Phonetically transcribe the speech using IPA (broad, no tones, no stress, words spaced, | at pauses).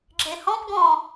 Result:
ɡ͡ǁehɔ̃p ɡɔ̃